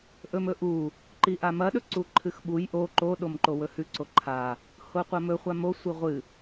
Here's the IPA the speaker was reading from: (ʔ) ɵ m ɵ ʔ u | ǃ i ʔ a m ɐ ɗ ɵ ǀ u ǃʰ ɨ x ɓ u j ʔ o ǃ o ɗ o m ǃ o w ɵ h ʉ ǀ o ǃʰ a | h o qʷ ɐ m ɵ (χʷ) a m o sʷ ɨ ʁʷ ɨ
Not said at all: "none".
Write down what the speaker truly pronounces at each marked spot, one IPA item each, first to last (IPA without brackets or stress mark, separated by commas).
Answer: ʔ, χʷ